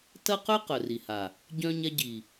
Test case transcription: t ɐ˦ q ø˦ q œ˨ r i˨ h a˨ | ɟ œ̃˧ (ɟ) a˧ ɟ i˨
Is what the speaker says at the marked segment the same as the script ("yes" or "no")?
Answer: no